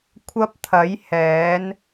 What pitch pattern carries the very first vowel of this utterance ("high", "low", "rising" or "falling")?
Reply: high